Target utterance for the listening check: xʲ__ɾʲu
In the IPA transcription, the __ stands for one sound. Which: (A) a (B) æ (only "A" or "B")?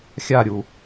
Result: A